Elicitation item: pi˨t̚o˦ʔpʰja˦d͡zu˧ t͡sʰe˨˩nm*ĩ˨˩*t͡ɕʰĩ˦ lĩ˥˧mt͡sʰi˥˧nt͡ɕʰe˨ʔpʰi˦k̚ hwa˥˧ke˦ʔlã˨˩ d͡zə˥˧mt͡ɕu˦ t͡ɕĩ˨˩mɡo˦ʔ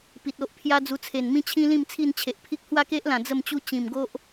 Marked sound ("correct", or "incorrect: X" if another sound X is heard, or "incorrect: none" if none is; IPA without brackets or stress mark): incorrect: ĩ˦